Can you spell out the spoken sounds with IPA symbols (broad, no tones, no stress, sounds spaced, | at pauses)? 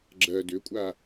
ɡ͡ǁ ɜ d ʏ kʷʼ a